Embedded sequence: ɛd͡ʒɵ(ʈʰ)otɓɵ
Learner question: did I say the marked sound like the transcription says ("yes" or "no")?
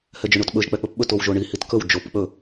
no